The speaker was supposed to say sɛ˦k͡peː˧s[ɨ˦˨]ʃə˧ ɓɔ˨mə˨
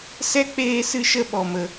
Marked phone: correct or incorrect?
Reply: incorrect